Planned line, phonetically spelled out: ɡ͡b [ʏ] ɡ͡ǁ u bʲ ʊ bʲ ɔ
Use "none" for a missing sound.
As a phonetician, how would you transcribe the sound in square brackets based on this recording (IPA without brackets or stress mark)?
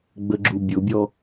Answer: ə